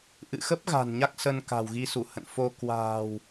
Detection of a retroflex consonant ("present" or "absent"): absent